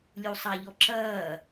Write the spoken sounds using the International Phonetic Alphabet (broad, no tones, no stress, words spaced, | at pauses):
lʲusˤaʎɔǁɐː